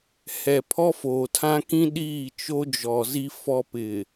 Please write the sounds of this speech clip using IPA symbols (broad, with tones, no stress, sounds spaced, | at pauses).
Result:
h ɛ˨ pʰ ɔ˦ f oː˨ tʰ ã˦ k ĩ˦ ɗ iː˦˨ t͡ʃ o˦ d͡ʒ ɔ˨ z i˦ f ɔ˦ p ɪ˨